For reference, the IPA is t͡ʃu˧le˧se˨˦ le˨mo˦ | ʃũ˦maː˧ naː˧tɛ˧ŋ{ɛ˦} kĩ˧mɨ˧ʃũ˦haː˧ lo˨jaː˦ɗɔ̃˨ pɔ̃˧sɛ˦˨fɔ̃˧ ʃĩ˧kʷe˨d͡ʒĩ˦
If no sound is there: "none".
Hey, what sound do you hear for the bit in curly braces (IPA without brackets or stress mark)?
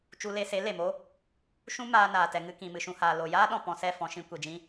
ɨ˦